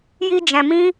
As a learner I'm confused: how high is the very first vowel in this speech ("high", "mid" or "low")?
high